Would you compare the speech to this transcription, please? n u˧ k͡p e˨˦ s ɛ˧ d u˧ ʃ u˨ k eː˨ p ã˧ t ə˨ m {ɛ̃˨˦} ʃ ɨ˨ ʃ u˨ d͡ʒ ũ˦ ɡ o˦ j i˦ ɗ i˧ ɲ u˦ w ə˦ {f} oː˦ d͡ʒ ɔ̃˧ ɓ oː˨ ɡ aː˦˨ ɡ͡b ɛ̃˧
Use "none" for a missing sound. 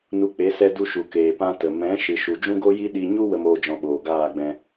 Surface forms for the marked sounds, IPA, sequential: ɛ̃˨˦, m

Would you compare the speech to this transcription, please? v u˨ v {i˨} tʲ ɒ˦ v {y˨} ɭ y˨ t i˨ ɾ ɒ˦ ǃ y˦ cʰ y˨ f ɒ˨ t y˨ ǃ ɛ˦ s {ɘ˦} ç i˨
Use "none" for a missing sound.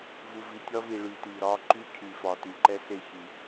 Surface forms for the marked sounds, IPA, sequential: i˨, i˨, e˦

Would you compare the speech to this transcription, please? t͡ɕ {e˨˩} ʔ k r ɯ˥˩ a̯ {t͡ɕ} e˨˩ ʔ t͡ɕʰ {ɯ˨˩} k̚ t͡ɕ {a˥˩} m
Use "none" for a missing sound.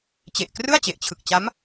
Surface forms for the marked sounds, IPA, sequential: e˨˩, t͡ɕ, ɯ˨˩, a˦˥

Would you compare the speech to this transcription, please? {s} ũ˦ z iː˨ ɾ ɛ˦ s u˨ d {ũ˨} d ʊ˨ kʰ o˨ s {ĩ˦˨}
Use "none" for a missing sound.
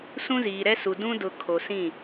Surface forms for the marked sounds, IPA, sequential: s, ũ˦, ĩ˦˨

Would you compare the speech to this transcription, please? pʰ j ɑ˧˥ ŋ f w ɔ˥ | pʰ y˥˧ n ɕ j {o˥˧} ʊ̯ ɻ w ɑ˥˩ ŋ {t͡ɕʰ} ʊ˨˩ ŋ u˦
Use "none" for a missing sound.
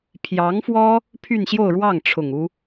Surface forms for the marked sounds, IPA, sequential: o˥˧, ʈ͡ʂʰ

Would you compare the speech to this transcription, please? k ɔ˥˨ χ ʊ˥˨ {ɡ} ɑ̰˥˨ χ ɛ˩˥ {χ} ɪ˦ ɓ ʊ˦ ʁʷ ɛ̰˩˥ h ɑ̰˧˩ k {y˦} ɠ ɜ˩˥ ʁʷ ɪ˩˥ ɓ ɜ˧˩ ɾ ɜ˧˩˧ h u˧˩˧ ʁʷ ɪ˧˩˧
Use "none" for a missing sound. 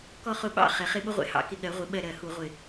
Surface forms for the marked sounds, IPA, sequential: ɓ, χ, ɪ˦

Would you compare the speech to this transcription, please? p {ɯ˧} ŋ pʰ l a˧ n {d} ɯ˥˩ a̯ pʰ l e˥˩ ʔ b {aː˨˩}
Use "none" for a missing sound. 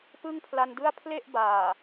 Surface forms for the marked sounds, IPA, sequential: ɯ˥˩, d, aː˨˩

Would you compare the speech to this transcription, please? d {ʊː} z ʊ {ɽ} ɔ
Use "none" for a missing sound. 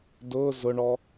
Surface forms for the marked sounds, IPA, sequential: ʊː, ɳ

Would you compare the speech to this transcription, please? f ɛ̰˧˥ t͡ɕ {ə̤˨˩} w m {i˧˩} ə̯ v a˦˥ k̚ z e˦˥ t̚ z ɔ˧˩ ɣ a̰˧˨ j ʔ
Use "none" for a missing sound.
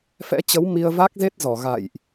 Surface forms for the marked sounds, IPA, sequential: ə˨˦, i˧

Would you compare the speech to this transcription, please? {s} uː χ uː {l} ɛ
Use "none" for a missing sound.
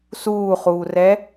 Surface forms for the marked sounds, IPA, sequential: s, r

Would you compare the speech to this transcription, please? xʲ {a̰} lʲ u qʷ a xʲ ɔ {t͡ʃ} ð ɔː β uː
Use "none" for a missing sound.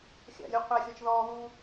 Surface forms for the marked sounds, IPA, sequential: a̰, t͡ʃ

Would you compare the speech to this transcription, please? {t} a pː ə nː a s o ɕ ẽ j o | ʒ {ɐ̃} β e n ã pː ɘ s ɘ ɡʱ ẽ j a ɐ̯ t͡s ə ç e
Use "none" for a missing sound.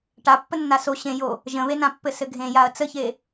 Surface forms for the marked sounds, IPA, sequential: ʈ, ə̃

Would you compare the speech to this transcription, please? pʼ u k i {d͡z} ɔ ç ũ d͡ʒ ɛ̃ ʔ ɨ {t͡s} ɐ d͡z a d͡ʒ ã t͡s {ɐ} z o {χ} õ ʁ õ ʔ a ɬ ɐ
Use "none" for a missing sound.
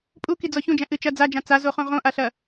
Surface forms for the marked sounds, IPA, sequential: d͡z, t͡ʃ, a, χ

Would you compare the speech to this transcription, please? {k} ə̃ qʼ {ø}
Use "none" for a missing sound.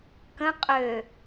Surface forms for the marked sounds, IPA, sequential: k, ø

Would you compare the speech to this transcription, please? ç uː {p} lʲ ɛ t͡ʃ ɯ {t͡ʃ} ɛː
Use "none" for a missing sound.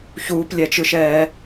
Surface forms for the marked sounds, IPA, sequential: p, ʃ

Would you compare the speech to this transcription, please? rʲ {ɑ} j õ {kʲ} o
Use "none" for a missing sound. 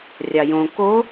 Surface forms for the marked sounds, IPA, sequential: ɑ, k

